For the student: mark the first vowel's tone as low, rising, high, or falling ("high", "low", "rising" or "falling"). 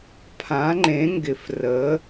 rising